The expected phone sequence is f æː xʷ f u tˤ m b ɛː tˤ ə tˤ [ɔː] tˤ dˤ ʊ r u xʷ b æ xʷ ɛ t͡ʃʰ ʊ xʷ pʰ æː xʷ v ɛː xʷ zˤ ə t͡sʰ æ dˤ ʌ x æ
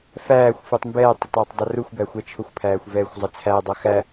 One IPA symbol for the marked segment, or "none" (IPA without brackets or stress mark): ʊː